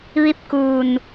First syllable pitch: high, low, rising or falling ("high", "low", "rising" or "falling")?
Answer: falling